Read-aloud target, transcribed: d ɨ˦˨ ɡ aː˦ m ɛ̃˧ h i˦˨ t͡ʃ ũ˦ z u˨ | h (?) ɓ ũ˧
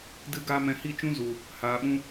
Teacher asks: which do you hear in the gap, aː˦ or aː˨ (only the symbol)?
aː˨